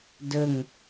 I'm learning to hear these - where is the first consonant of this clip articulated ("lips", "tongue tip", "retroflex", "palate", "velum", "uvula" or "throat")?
tongue tip